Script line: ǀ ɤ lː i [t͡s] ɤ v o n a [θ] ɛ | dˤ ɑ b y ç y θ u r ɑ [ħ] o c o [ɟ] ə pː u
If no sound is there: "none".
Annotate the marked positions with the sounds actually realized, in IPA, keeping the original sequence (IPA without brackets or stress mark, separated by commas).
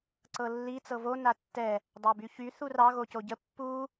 t͡s, tː, ɣ, ɟ